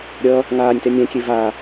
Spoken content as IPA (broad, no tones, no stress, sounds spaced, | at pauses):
ɾʲ ʌ | ŋ aː nʲ t ɛ nʲ ɛ̃ kʲ e v a